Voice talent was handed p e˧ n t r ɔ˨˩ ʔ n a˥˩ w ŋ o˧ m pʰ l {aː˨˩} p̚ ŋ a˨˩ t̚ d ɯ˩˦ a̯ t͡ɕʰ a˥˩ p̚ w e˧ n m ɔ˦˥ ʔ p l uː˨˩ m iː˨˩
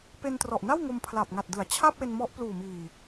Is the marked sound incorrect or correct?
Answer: incorrect